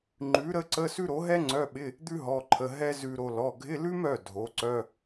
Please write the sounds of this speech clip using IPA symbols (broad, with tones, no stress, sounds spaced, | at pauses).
ŋ͡ǃ ʉ˩˥ ɾ ə˧˥˧ ǀ ə˧˥˧ s ʉ˥ ɾ o˩˥ ɦ ɛ˥ ŋ͡ǀ œ˧˥˧ ɓ ɪ˧˥˧ | d̪ ʉ˥ ɦ ɔ˩˧˩ ǃʰ ə˩˧˩ ɦ ɛ˥ z ʉ˧ ɾ o˧ l ɔ˩˧˩ ɡʱ ɪ˧˥˧ l ʉ˥ m œ˩˧˩ dʱ o˩˥ ǀ œ˧˥˧